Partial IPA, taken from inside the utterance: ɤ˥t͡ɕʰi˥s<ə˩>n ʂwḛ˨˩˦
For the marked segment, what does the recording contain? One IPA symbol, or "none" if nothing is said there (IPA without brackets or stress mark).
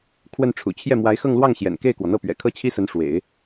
ə˧˥